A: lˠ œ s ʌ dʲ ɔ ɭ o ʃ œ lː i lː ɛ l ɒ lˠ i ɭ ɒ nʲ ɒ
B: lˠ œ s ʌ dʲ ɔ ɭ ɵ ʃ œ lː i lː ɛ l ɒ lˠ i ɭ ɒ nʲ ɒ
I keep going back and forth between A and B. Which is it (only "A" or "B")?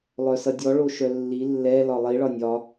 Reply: A